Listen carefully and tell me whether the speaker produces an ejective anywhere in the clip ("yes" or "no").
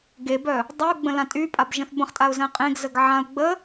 yes